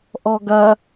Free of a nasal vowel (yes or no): yes